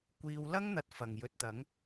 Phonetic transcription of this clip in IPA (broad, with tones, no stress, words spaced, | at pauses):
kʷiː˨˧wlɐ˥ŋ n̪ɐ˧t̚fɐ˨˩ŋjɵ˨t̚t̪ɐ˨˥ŋ